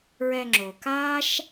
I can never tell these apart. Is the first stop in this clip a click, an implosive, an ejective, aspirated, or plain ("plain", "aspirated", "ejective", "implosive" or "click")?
click